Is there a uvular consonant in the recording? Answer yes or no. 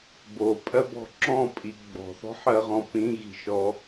yes